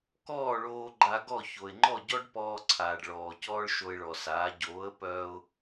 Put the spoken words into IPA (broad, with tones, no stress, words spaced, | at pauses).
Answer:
kɔː˥˩ɭoː˧ ɡ͡ǃa˧ɡɔ˥˩ ço˩ɪ̯ŋ͡ǃɔ˥˩ɟɔ˥ɖpɔː˧ ǀʰaː˩ɖɭɔː˩ cɔː˥ɭʃo˧ɪ̯ɭɔ˩saː˩˥ ɟoː˩˥ə̯pœː˧ʊ̯